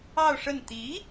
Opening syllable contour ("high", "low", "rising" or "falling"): falling